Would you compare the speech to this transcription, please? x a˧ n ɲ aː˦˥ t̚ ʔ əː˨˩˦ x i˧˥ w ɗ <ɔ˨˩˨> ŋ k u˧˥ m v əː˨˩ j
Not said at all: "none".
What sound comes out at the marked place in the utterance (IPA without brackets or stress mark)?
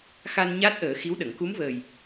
ə˨˩˨